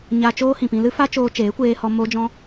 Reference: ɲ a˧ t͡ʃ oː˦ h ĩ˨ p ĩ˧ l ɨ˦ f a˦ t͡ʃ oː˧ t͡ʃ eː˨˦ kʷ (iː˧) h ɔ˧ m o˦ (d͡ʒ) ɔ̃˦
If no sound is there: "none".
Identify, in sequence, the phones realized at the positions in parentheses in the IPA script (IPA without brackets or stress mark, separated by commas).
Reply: eː˧, d͡ʒ